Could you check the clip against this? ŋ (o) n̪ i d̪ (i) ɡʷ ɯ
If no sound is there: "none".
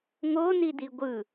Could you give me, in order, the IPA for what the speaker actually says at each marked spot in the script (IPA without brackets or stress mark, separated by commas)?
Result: o, i